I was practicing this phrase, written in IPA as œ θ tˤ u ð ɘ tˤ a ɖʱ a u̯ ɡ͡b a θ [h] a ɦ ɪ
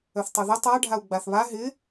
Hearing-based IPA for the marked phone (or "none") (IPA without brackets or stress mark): β